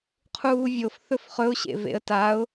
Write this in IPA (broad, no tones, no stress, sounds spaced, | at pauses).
qʰ uː vʲ o f θ ɵ f χ ɵ ʊ̯ ɕ ḛ v ḛ ə̯ t a ʊ̯